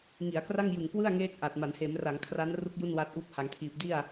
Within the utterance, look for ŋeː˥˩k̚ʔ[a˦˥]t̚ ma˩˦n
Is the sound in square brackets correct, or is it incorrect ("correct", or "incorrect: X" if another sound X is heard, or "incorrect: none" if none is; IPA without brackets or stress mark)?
incorrect: a˨˩